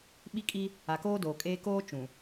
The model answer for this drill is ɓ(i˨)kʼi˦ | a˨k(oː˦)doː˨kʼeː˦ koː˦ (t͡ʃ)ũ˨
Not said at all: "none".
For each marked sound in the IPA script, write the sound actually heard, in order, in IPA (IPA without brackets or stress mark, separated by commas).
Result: i˦, oː˦, t͡ʃ